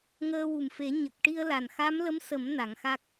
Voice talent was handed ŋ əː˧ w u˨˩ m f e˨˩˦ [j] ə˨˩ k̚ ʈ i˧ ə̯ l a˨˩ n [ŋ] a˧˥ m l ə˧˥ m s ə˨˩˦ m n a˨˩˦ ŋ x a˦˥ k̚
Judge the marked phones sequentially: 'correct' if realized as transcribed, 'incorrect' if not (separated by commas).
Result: incorrect, incorrect